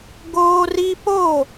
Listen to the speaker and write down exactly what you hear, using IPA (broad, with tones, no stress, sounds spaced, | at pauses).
ɡ oː˦ r i˦ p o˦˨